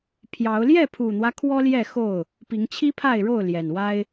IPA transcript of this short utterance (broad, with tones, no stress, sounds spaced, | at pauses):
pʰ j ɑ˨˦ ʊ̯ l j ɛ˥˨ pʰ u˨˩ n̪ w ä˦ kʰ w ɔ˦ l j ɛ˥˨ x o˥˨ ʊ̯ | p i˨˦ ŋ t͡ɕʰ i˦ pʰ a˥˨ ɪ̯ ɻ o˥˨ ʊ̯ l j ɛ˨˩ n w a˦ ɪ̯